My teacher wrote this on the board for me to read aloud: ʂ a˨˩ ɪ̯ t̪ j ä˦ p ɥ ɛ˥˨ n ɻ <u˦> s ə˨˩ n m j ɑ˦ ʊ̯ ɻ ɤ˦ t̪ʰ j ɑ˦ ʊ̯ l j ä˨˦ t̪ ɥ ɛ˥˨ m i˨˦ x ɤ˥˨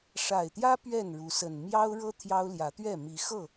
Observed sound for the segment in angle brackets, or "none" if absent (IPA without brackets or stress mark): u˨˦